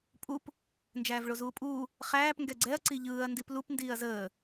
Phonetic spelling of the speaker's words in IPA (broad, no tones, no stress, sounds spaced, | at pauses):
pʼ u p | n d͡ʒ æː v ɭ o z uː pʼ uː | χ æː p ŋ ɡ ɛ ɡ͡ǀ ɛ ɐ̯ ǀ i ʎ ɯː ɐ̯ n d i p l u p n d iː ɐ̯ z əː